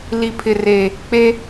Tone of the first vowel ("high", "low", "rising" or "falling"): low